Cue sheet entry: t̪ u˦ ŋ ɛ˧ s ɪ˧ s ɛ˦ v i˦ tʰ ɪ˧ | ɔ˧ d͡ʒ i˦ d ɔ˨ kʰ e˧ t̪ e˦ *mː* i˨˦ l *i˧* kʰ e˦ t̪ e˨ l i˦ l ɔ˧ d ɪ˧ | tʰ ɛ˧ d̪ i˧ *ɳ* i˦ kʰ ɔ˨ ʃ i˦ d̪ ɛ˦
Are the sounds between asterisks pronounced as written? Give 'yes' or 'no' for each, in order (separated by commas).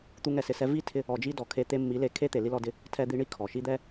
yes, no, yes